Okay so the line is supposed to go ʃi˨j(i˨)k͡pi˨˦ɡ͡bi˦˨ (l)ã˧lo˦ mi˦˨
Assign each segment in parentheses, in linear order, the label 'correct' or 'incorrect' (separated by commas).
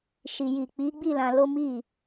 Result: correct, correct